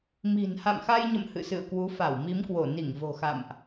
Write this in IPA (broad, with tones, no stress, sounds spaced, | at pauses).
m i̤˨˩ n h a̰˧˨ m x a˧ j ɲ ə̰˧˨ m h ɨ̰˧˨ s ɨ̰˧˨ ə̯ k w u˨˦ f a˧˩ w m i˨˦ m k w o˧˩ n i˧˩ ŋ v o̤˨˩ x a̰˧˨ m ʔ